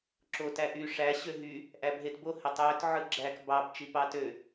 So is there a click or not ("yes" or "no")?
yes